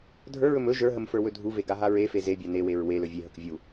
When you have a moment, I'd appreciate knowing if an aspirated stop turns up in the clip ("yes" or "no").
no